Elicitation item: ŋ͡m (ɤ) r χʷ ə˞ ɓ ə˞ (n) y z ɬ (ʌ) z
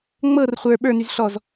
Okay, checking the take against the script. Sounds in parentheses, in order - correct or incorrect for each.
correct, correct, incorrect

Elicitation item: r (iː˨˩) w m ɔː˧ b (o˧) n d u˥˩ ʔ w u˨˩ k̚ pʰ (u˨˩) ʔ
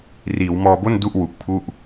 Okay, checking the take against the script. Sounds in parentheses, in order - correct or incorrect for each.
incorrect, incorrect, incorrect

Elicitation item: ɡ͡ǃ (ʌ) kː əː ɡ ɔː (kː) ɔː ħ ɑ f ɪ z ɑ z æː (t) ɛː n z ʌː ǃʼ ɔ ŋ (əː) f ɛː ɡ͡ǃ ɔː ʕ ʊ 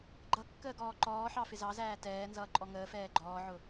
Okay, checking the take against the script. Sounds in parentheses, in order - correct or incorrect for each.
correct, incorrect, correct, correct

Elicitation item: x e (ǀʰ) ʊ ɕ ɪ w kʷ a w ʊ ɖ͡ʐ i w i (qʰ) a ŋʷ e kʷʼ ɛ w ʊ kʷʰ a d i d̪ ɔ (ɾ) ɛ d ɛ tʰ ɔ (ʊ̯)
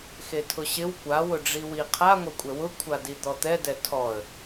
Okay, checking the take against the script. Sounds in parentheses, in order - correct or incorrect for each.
incorrect, correct, incorrect, incorrect

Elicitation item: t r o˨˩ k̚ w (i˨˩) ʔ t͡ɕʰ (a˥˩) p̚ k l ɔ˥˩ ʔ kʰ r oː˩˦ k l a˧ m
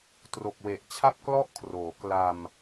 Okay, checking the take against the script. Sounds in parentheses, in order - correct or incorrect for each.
incorrect, correct

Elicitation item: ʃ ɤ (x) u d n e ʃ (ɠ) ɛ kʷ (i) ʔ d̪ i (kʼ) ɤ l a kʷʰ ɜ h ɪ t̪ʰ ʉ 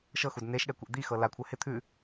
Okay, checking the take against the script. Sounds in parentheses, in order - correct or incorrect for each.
correct, correct, incorrect, incorrect

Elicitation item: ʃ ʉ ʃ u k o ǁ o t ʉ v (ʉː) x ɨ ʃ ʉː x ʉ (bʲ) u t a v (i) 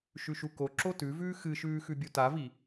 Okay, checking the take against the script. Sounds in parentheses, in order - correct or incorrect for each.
correct, correct, correct

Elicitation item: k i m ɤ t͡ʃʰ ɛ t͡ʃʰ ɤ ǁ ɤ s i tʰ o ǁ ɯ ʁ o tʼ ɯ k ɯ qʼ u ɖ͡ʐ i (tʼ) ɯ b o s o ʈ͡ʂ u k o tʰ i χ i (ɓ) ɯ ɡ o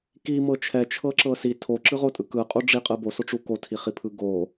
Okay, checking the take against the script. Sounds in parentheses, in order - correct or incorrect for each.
incorrect, incorrect

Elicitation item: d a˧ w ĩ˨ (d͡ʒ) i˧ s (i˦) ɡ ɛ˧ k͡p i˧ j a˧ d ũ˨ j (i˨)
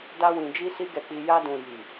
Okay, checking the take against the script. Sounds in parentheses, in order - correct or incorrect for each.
correct, correct, correct

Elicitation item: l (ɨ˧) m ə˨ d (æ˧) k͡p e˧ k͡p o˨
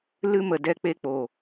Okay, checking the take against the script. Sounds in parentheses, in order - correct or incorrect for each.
correct, incorrect

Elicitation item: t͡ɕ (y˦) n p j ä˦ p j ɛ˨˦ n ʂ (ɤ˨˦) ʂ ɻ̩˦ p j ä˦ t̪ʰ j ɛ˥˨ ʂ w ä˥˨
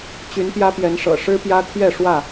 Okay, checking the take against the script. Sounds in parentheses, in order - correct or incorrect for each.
incorrect, incorrect

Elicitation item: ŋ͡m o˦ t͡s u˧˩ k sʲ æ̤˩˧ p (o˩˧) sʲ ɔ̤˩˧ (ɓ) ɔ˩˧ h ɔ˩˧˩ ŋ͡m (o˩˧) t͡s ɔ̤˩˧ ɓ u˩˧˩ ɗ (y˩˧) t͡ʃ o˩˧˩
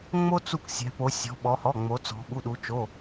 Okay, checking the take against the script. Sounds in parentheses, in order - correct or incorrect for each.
correct, correct, correct, incorrect

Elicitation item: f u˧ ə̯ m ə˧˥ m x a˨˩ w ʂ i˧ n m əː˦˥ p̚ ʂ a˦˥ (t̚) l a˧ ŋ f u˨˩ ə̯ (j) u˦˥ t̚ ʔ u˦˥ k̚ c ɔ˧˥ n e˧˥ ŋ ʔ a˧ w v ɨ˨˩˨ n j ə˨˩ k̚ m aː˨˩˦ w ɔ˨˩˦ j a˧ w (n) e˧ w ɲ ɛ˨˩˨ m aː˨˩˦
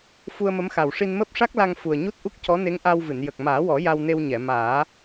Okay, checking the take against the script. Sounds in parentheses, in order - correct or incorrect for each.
incorrect, incorrect, correct

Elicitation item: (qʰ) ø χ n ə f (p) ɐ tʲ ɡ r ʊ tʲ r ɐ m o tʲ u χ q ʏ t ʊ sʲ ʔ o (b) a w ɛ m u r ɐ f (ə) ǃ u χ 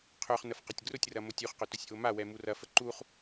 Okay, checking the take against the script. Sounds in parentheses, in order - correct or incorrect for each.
correct, incorrect, incorrect, correct

